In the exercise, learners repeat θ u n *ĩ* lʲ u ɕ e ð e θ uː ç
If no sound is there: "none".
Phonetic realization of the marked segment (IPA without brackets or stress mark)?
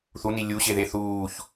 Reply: i